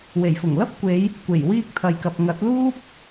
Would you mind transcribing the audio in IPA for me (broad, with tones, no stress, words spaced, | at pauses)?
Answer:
we˨˩jfʊ˨˩ŋlɐ˥p̚kʷe˨˧j | kʷe˨˩jwiː˧k̚t̪ʰɐ˨jkɐ˨p̚ ŋɐ˨˥t̚luː˥p̚